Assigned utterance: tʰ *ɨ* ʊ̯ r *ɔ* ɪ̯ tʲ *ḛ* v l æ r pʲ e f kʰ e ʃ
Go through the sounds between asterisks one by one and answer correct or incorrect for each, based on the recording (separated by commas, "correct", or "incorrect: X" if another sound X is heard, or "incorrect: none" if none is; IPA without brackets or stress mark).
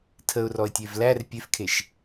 incorrect: ə, correct, incorrect: e